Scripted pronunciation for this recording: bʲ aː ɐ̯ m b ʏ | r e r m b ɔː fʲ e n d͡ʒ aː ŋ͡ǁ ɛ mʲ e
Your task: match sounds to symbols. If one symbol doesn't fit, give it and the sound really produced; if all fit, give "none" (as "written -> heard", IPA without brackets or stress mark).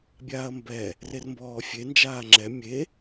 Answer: ʏ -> ɛ